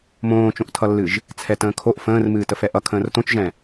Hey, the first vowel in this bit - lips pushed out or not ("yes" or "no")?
yes